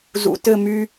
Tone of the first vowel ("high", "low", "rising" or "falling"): low